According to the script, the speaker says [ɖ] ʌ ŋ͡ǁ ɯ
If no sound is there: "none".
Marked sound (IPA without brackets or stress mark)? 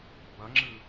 b